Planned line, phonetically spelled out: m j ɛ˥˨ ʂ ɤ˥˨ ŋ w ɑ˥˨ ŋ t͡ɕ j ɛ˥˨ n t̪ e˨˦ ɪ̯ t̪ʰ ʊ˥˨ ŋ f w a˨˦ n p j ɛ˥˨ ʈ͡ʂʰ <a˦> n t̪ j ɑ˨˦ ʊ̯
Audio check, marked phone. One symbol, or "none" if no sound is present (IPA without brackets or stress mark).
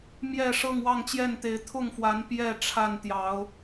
a˥˨